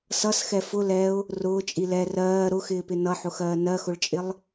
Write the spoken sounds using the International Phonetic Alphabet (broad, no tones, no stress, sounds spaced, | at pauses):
s ʌ s x ɛ f ʊ l ɛ ʊ̯ | r ʊː t͡ʃʼ i l ɛ r ɜː ɾ ʊ x ɪː p ɪ n ʌ ħ ʊ x ɜː n ɜ x ʊ ɭ t͡ʃʼ ɪ lˠ